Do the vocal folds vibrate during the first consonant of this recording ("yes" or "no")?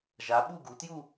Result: yes